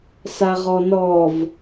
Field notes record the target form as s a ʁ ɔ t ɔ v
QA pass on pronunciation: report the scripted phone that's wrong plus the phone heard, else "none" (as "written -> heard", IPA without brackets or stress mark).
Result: t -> n